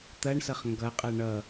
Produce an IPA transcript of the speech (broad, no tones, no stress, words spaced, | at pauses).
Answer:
t̪ɐɳsʌχ ŋɡʌqʼɐ ɳʌ